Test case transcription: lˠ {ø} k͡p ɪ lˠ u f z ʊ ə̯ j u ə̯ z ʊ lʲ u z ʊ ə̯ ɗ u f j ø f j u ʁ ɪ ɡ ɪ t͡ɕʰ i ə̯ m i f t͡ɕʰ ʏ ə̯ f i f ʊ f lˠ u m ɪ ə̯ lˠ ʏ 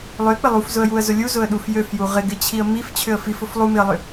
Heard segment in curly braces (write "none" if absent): ø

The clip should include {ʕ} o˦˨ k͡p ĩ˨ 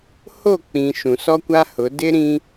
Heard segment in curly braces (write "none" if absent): h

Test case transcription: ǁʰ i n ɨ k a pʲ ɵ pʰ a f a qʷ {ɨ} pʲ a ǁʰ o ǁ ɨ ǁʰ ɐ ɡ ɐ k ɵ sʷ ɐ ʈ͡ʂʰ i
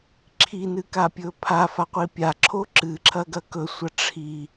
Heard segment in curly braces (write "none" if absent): i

